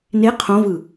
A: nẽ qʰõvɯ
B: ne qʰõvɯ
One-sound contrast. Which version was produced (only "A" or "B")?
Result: B